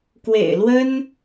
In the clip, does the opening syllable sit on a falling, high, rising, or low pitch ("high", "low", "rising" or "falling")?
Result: low